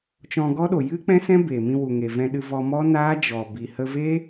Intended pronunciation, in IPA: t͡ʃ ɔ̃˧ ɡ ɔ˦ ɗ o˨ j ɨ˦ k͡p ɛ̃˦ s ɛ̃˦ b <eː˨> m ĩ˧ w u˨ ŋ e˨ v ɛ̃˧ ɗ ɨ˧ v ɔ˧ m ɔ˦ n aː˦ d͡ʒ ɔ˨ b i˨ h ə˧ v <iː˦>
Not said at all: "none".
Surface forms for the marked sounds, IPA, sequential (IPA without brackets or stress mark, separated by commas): eː˨, eː˦